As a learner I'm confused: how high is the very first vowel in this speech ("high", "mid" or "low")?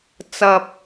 low